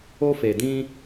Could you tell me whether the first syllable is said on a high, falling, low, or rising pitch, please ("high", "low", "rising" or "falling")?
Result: high